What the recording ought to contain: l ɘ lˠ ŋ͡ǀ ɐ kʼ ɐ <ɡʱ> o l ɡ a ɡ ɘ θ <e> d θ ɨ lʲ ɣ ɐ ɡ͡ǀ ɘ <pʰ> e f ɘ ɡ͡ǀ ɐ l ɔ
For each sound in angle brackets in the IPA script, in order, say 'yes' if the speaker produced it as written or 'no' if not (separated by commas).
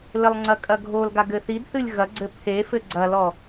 yes, no, yes